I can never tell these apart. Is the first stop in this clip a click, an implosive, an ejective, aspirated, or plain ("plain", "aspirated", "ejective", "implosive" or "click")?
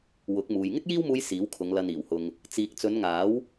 plain